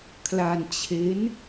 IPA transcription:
kʰla˧nt͡ɕʰe˦˥n

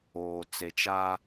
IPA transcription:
oː˨ t͡se˨t͡ʃa˦

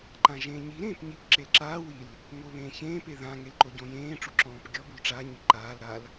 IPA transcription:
ǃãʒẽːɲi ɾẽːpɲip ǁelǁaː wil | ŋoβẽːçẽː peðã ŋelǃoɟõjẽː ʈ͡ʂuǁɔ̃ːpɡʲɔ bulʈ͡ʂa ɲiǃaːl ɾal

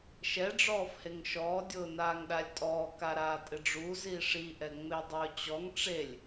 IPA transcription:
ʃɛ ɖ͡ʐɔːfheŋʃɔː dʲʊːnaːŋɗalʲtʼɔː kaɾaːtʼɪɖ͡ʐu ziʂi ʔɛŋ͡medˤʊːt͡ɕɔŋ ʈ͡ʂelʲ

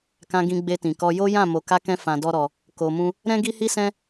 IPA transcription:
kã˧ɡĩ˧ ɡ͡be˧tĩ˨kɔ˧ jo˦jã˦˨ mo˨ka˧kɛ̃˧ fã˧dɔ˦ɾɔ˧ | ko˧mũ˦ | ɾɛ̃˦ɡi˦hi˦sɛ̃˦

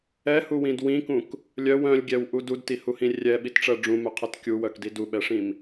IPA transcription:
ɛhuwĩd wĩkũk | lʲœw œ̃lʲɡʲɛwʔu dudtihuhĩ rʲɛɓitʈ͡ʂɜ ɖ͡ʐũmœqʰɛt kʲuwœkdi duɓɛʂĩm

